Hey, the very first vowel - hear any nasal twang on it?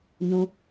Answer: yes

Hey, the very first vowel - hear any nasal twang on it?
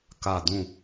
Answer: no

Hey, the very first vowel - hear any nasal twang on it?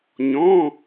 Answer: yes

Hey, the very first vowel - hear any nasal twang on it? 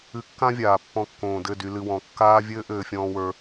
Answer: no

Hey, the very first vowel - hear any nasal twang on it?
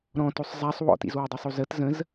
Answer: yes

